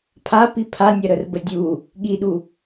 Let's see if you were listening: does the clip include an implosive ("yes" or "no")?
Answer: yes